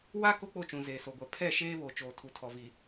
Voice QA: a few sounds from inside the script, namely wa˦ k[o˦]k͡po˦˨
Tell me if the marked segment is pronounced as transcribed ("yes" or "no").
yes